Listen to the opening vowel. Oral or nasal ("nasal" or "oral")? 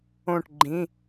nasal